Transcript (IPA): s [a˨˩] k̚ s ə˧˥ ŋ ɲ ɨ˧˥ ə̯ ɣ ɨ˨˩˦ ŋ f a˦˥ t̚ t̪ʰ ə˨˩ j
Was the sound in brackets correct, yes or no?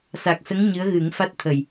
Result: yes